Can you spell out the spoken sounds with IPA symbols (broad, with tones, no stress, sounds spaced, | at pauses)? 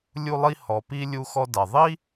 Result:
lʲ u˧ lˠ i˧ h ɔ˩ p i˧ lʲ u˧ x ɔ˧ d a˩ ðˤ i˥